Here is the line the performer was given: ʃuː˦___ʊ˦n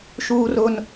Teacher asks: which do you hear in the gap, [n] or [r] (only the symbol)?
r